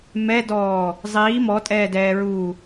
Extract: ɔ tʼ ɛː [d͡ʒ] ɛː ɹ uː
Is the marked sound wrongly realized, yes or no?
yes